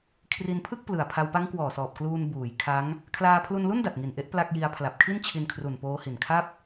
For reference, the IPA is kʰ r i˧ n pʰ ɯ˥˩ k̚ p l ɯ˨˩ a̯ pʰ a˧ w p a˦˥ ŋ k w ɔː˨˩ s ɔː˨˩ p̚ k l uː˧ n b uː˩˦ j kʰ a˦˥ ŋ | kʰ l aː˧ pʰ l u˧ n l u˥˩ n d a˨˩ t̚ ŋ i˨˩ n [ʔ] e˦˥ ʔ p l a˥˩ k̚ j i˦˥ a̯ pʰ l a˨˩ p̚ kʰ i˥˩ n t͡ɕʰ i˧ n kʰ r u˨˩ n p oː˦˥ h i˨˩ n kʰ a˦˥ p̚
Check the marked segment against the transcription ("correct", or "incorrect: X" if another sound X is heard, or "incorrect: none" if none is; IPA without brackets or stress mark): correct